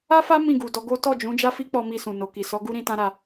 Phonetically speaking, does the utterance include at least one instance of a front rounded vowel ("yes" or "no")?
no